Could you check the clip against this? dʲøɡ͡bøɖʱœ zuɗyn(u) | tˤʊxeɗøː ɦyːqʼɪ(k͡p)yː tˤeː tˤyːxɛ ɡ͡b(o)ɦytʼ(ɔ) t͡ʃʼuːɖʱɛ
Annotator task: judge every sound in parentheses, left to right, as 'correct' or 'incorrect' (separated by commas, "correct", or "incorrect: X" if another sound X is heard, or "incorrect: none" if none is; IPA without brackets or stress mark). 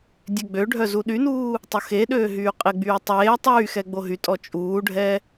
incorrect: uː, incorrect: ɡ͡b, correct, correct